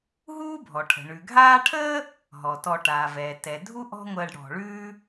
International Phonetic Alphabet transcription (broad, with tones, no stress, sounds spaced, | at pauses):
ɦ uː˦ bʱ ɔ˩ ʈʰ ə̤˩ ɳ ʉ˩ ɡʱ aː˦ ʈʰ əː˥ | ɦ ɔ˩ t ɔ˨ ʈ aː˩ v ɛː˩ t ɛ˩ dʱ u˥ ʔ ɔ̤˦ ŋʷ əː˨ ɖ ɽ ɔ̤˩ ɭ ʉː˥